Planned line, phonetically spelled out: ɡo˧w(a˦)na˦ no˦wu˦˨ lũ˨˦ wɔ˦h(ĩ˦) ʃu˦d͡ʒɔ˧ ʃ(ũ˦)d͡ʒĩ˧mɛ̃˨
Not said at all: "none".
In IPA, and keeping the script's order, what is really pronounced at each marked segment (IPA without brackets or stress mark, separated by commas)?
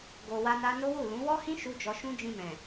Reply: a˦, ĩ˦, ũ˦